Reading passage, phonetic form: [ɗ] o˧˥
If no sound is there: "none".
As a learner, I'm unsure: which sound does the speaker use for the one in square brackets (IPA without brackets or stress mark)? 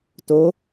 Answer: t